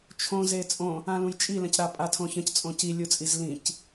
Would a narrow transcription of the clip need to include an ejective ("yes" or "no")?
yes